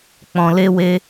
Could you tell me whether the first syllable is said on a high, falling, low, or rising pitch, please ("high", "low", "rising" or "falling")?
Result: low